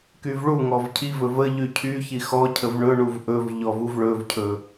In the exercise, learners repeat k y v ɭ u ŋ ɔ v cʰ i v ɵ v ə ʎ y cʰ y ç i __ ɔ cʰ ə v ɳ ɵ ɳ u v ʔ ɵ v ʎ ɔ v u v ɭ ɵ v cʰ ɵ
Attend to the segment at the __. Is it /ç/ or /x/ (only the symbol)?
x